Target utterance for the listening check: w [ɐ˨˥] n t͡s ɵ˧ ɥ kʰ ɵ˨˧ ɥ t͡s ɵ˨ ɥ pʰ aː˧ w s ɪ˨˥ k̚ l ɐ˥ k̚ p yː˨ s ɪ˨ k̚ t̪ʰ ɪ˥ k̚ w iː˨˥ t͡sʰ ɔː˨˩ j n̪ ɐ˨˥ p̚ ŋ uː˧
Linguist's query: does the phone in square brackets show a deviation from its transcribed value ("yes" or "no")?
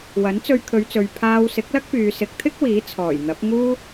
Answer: no